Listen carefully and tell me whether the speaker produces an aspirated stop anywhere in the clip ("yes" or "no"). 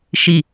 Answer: no